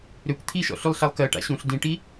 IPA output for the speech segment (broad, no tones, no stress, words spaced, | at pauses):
ɾøkʷ t̪ʰiʃɔ̰ ɬylˠɬalˠkɜʈa̰ ɕũɬ dĩʈi